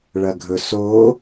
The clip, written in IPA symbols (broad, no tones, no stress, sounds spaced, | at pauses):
ɭ ɐ ɡʱ ɵ s o